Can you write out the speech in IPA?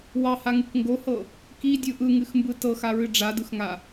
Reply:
w ɑ h a ŋ ɨ k ŋ ɡ o h ɤ | k i dʲ ɯ ʔ ɯ ŋ ɨ x m b ɯ t ɤ x a ɹ ɨ ɖ͡ʐ a d ɯ x ŋ a

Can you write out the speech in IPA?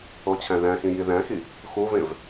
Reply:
o t͡ɕʰ æ̃ ð æ̃ x ĩ j i ð æ̃ x i | x u v ẽ v

